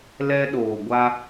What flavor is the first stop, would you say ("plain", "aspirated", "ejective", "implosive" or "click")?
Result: implosive